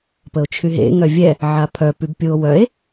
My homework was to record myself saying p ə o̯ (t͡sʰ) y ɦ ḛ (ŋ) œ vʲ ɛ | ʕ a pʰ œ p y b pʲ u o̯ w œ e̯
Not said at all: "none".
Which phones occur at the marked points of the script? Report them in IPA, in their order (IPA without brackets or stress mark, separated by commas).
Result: t͡ʃʰ, ŋ